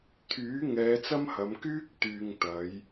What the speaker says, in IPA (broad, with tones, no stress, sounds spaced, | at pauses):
t̪ʰ yː˨˥ ŋ ɛː˨˧ t͡s ɐ˥ m h ɐ˨˧ m k yː˥ k̚ t̪ yː˨ ŋ t̪ ɐ˨˧ j